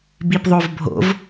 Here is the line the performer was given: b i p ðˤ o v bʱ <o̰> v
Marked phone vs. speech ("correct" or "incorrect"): correct